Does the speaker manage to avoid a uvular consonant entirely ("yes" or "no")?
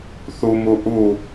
yes